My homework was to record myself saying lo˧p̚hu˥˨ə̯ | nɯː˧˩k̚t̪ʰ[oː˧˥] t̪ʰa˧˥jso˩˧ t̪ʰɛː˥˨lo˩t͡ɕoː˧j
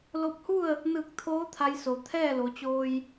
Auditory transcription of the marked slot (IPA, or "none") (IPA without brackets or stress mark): oː˧˥